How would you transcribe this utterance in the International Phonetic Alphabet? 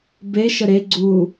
b e ʃ ə ɾ e ɡ͡ǀ u

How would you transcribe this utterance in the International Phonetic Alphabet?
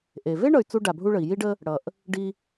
ʔ e˩ v e˥ ɳ ʌ˩ y̯ t͡s u˧ ɖ a˩ bʱ u˧ ɭ ə˩ i̯ j i˧ ɖ ə˧ | ɽ ʌ˩ ʔ | ɖ i˧

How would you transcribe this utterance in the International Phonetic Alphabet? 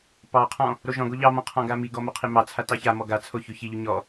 p ɑ qʰ ɔ̃ | ɾ o ʒ ɔ̃ ɡ o ʎ ɑ m ɔ̃ qʰ ɔ̃ ɡ a m i ɡ ɔ m o qʰ i m ɑ t͡sʰ a t ɑ ç a m ɔ ɡ a t͡sʰ o ç ʉ ç i ʎ ʉ ɲ ɔ

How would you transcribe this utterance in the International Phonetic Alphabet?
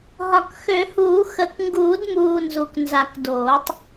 ɦ ɒ˨˩ k x ø˨˩˦ h uː˨˩˦ x ə˨˩ k ŋ ɡ uː˨˩˦ d m uː˨˩ n z u˨˩ k n z a˨˩˦ k d oː˨˩˦ tˤ

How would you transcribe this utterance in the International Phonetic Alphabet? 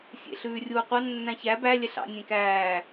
sʲ ḛ ɬ ʉː rʲ uː qʷ ɑ nː æ̃ ç æ b æ lʲ ɛ ɬ ɑ̰ nʲ ẽ k æː

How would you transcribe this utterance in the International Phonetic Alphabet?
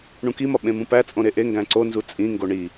ɳ ũ k i m ɒ ɓ ẽ m ũ p æ t͡sʼ õ ɾ e ʔ e ŋ ɡ æ̃ ǀ o n z u t͡sʼ ĩ ŋ ɡ o ɳ i

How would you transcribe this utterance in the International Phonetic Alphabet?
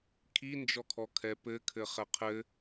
kʰ i n d͡ʒ ɔ kʰ ɔ kʰ ɛ p ɘ kʰ ɘ χ ɛ qʰ ɘ

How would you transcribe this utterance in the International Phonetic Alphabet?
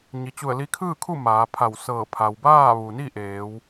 ɲ i˩ t͡ɕ u˧˩ ə̯ l i˧ kʰ ɯː˥˨ kʰ u˥˨ m aː˩˧ pʰ a˧˩ w s ɤː˧˩ pʰ a˩ w b aː˥˨ ʋ u˩ n i˥˨ ʔ eː˩˧ w

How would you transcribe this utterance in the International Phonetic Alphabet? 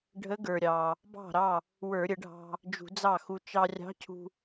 ɖʱ ə˧˥ ɡ ə˞˩ ɾʲ ɑ˩ | b ɑ̤˥˩ ɾ ɑ˥˩ | w ə˞˧˩˧ ɾʲ ə˧˩˧ ɖʱ ɑ̤˧ | d͡ʒ ṳ˧˩˧ d͡z ɑ˥˩ x u˧ t͡ʃ ɑ˧ rʲ ɑ̤˧˥ cʰ ṳ˧

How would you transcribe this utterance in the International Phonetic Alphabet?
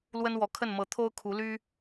l w ə˥ n w ɔ˧˥ kʰ ə˥˩ n m ɤ˧˥ t̪ʰ o˥ ʊ̯ kʰ u˧˥ l y˥

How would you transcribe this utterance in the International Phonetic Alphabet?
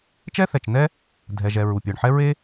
t͡ʃ ɛ˥ θ ɛ˩ t͡ʃ n ɛ˥ | dʱ ɛ˩ ʒ ɛ˩ ɹ u˩ pʲ ə˞˩ ɳ ħ ɛ˥ ɹ e˥

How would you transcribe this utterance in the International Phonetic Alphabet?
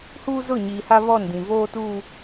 h uː˦ z ʊ˦˨ ɲ iː˨ h a˦ β ɔ˦˨ n d ĩ˨ v oː˦ t uː˦

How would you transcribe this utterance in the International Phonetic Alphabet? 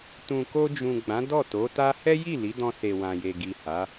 t ũ˨ k o˧ d͡ʒ ũ˨ ɡ͡b ã˨˦ d ɔ˦˨ t o˨˦ t a˦ h ɛ˦ j i˦˨ l i˨˦ d ɔ̃˧ s e˨ w ã˨ j e˨ ɡ i˨ h a˨˦

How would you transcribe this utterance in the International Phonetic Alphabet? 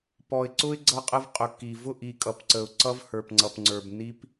p ɔ˨ ɪ̯ ǀ ʊ˦ ɪ̯ ɡ͡ǀ ʌ˦ qʼ ə˦ v qʼ ʊ˨ kː i˨ v ʊ˦˨ ʔ i˨ kʼ ʌ˨ p ǀ ə˨ ʊ̯ ǀ ʌ˦ v h ə˞˨ p ŋ͡ǀ ʌ˨ p ŋ͡ǀ ə˞˨ b nː i˦ p

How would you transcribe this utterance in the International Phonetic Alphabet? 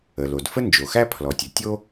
ə˩ l o˩ d f ə˥ n d͡ʒ o˩ x æ˥ pʰ l ɔ˩ tʲ ə˩ tʲ o˥

